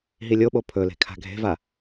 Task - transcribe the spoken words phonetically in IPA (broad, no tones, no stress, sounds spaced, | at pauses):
ɦ i lʲ o ɓ o pʰ ɵ l e̤ kʰ a̤ ɡʱ e̤ v a